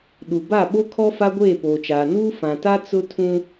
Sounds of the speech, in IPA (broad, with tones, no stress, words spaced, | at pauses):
ɗu˨ ba˦˨ɓo˦kʰɔ˦ fa˦ɡʷeː˦˨poː˨t͡ʃaː˨ nuː˦ fã˨ta˦ t͡sʊ˦tʰũ˦